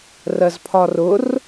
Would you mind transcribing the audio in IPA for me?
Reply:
r ɜ z pʰ ɒ r ʊ r

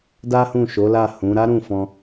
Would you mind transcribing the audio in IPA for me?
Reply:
d a˦ h ũ˦˨ ʃ o˨˦ l a˦˨ h ũ˨˦ ɾ a˦ ɾ ũ˦˨ f ɔ̃˧

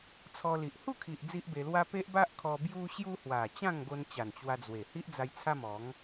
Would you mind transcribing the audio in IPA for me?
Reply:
t͡sʰ ɔ˧ l i˨ ʔ h u˥˧ kʰ i˨ ʔ d͡z i˦ ʔ b e˧ l w a˦ p e˦ ʔ b a˦ ʔ kʰ ɔ˧ b j u˦ ɕ j u˦ h w a˨˩ t͡ɕ ã˥˧ ŋ ɡ o˧ n t͡ɕ a˨˩ n t͡ɕ w a˧ d͡z w e˨˩ h i˦ ʔ d͡z a˧ j t͡sʰ a˦ m ɔ˨˦ ŋ

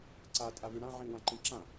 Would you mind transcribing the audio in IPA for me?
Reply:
ǀ a tʼ a β y ɽ ã ʕ ĩ w ã ǃ ĩ ǁ ã

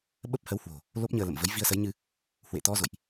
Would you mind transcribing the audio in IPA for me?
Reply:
ɓ ə˦˥ p̚ h ə˨˦ w h w o̤˨˩ | l o˦˥ p̚ ɲ əː˧ l ə̰˧˨ m v ə˨˦ j v i˧ ə̯ s ə˨˦ j ɲ ɨ˧ | h w ḛ˧˨ t̪ ɔ˧ z o̰˧˨ j ʔ

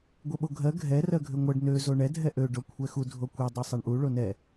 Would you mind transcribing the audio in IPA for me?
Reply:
ɡʷ ɛ ɓ o ɡʱ ɜ ɡʱ ɛ r ɜ ɡʱ ø ŋʷ ɜ ɖ n ø z o ɳ ɛ dʱ ɛ ʔ ø ɖ o kʷʰ ɛ x u dʱ o kʷ ɛ dˤ ɛ sˤ ɛ ɳ ʔ u ɭ o n ɛ

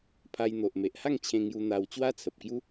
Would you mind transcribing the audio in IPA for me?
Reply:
pʰ a˧ j n̪ o˨ ʔ m e˨ ʔ h a˥˧ ŋ t͡ɕʰ ẽ˧ ŋ j u˧ n̪ a˧ w t͡ɕ w a˦ t͡sʰ ə˨ p̚ k j u˦

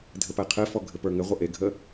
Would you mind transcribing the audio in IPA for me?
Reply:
dʱ ɘ p æ qʰ ɘ f ɔ ɡʱ ɘ p ə˞ ŋ ɘ ʁʷ ə ʔ e ɡʱ ə

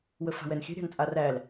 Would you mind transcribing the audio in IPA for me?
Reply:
w ə f a̤ w ɛ n xʲ ɛ̤ ɾʲ a̤ n t͡sʼ a r æ l

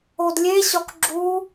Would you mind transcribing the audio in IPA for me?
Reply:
o d lʲ e ɕ ɒ k ɡ͡ǁ u

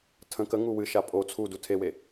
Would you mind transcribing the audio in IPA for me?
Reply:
tʰ ə̃ k ə ŋ u w ɨ ʃ a pʼ o t͡sʰ u d u tʰ e w e

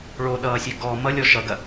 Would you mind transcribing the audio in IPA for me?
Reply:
ɭ o ɗ ʌː sʲ ø ɡ ɔ m ʌ lʲ ɔ ʃ ʌ ɡ ɐ

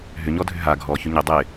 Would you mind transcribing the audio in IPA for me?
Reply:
ɦ ʏ ɲ ɔ dʱ ʏ ɦ a ɡʱ ɔ ç ʏ ɲ ɪ dˤ ɪ

